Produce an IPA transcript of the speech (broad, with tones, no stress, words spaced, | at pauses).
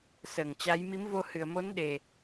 səː˧˩ŋt͡ɕa˨˦j mi˨˦mvo˧hɨ˨˩ə̯ mo˨˦nɗe˨˩